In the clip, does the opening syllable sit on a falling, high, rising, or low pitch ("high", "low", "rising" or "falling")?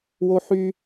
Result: high